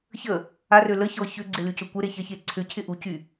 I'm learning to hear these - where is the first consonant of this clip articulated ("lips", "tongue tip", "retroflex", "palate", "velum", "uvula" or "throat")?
palate